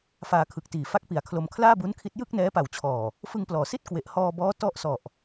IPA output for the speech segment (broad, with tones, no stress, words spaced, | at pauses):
faː˧kʰɯ˨˩k̚tiː˨˩ fa˥˩k̚pi˨˩a̯kʰlo˧m kʰlaː˥˩bu˦˥nkʰi˦˥t̚ jɯ˥˩k̚nɛː˦˥ pa˨˩wt͡ɕʰɔː˨˩ | fɯ˧ŋplɔː˩˦si˥˩t̚ kwe˨˩ʔ hɔː˧bɔː˦˥ tɔ˥˩ʔsɔ˨˩ʔ